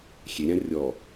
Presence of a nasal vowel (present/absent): present